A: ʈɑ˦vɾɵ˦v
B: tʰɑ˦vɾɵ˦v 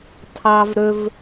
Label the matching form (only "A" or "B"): B